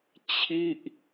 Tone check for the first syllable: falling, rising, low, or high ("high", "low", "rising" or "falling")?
falling